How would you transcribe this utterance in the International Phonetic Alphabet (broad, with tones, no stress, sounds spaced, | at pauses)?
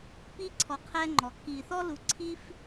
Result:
p iː˧ ǀʰ ɔ˩ qʰ ɛː˧ ŋ͡ǃ ɔ˩ kː iː˩ θ ɔ˧ l u˩˧ ǀʰ iː˧ f